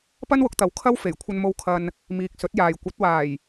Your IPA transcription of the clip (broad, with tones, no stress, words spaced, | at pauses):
pɐ˥nwʊ˨˥k̚t̪ɐ˨˥w kʰɐ˥w fe˨˩jkʷʰɐ˧nmo˧w kʰɐ˧n | miː˨k̚sɵ˨˥t̚jaː˨j kʷɐ˨˥t̚waː˨˩j